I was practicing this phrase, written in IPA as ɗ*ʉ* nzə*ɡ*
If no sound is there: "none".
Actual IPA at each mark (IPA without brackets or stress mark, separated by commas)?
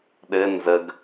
ɘ, ɡ